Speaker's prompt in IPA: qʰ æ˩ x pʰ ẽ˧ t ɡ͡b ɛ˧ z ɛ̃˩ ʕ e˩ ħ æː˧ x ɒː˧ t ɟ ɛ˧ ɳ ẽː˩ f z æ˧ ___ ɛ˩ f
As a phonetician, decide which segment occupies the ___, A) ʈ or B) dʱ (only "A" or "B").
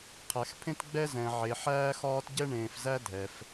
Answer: B